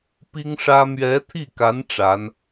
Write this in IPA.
pi˥ŋʂä˥ mɥɛ˧˥t̪ʰi˥˩ka˧˥n ʈ͡ʂa˧˥n

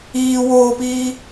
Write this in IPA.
iː woːpiː

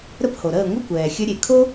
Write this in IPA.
ɾə˥˩pho˩ɾəː˥˩ ŋʷə˥˩kʷɛː˩xʲə˧ ɾʲe˩kʰo˥

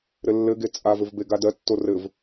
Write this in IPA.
ɾɘlːɘɡe t͡sʼavɘv beɡadɜtːo rɘv

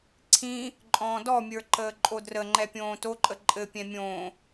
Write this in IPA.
ǀʰĩ | ǃʼɔ̃ːdɔmʲə˞ ǃəːǃʼodrəŋ͡ǃɛ pʲõːtoǃʼə ǃʼɘpʲɛ̃ mʲõː

